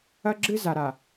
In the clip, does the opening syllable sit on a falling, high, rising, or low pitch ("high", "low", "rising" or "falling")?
high